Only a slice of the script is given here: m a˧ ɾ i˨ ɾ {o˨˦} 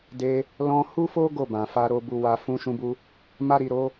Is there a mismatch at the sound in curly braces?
no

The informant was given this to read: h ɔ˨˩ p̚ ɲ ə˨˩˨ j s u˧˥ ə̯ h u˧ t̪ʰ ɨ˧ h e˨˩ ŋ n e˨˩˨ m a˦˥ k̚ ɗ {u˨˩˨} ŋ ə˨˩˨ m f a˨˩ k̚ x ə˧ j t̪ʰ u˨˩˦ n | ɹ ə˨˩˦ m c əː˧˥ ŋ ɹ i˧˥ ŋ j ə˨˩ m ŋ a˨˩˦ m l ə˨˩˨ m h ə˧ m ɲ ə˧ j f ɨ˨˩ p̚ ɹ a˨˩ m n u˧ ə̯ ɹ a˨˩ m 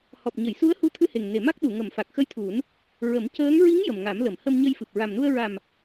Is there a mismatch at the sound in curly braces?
no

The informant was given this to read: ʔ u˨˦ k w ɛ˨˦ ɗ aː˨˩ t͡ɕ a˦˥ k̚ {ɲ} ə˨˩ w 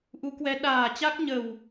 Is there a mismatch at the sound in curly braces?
no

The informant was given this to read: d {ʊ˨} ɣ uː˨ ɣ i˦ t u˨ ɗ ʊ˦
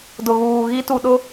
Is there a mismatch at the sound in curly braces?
no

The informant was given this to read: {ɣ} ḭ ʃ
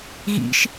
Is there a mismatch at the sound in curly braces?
no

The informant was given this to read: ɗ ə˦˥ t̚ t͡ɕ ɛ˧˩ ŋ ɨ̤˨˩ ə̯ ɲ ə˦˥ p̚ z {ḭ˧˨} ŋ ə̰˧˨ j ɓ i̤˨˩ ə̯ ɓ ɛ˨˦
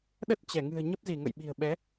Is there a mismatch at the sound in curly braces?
yes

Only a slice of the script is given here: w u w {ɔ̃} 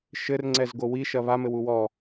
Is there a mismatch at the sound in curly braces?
yes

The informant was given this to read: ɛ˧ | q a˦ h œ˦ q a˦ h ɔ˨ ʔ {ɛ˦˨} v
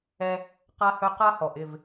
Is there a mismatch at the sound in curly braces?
yes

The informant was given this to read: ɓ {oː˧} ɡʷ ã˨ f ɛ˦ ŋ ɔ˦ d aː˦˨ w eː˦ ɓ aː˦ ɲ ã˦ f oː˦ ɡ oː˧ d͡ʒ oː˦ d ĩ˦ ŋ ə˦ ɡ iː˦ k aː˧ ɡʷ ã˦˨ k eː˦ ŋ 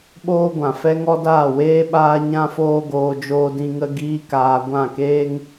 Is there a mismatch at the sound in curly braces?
yes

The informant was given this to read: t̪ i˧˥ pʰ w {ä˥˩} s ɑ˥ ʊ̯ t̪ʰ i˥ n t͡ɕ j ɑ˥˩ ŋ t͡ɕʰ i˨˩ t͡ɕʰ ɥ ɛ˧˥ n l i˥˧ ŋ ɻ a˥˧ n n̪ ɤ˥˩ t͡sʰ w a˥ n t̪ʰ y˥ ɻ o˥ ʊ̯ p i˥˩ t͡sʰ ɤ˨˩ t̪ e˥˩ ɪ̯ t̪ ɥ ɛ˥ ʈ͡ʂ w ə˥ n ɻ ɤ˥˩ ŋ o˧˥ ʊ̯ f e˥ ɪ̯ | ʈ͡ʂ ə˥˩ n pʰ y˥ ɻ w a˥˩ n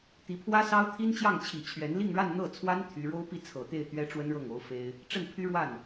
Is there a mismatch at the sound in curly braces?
yes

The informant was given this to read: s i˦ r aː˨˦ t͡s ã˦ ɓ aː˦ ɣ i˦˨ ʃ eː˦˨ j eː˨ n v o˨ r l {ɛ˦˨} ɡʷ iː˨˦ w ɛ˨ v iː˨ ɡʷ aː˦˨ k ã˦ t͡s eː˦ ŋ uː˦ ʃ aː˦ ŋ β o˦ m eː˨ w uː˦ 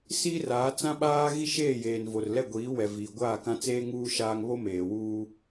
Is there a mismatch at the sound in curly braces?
no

